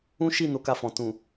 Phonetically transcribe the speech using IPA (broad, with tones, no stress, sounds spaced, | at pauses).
ũ˦ ʃ i˦˨ n o˨˦ k a˧ f ɔ̃˨ t ũ˨